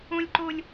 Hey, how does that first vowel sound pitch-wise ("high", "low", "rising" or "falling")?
high